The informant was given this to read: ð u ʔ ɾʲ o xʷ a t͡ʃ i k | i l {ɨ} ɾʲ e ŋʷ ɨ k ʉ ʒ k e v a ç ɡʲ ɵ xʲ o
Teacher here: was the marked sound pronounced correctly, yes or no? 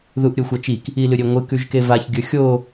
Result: yes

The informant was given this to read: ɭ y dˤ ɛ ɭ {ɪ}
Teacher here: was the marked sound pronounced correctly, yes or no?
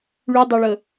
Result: no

